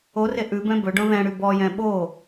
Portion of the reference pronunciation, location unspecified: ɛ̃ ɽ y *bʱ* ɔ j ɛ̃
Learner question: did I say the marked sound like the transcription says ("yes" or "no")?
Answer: no